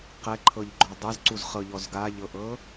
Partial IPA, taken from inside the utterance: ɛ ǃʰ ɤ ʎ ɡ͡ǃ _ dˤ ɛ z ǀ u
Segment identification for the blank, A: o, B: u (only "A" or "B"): A